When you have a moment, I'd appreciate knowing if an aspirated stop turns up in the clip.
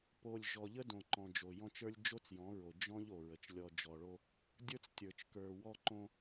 no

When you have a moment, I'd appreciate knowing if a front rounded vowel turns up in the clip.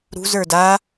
no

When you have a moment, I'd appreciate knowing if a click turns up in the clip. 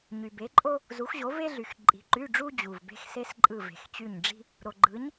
yes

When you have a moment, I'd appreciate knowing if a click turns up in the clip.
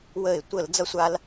no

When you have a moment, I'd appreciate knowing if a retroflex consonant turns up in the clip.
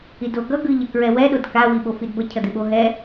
no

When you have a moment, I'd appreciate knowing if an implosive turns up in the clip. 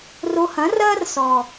no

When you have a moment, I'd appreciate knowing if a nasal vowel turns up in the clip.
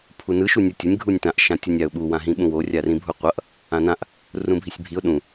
yes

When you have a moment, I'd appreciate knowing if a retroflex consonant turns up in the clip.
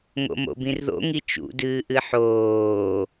no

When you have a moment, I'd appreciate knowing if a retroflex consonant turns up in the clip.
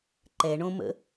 yes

